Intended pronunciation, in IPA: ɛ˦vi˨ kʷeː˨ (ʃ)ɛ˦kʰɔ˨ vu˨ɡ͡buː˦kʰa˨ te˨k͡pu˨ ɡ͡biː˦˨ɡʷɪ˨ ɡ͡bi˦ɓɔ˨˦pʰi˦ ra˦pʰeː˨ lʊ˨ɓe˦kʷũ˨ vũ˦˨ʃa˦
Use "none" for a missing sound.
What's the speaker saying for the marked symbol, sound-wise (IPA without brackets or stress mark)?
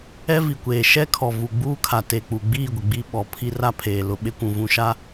ʃ